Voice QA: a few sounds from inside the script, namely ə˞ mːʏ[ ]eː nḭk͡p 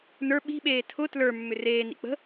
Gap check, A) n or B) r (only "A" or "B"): B